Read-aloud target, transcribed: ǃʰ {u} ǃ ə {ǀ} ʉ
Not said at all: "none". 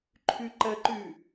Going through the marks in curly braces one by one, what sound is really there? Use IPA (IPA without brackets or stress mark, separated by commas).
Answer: ʉ, ǃ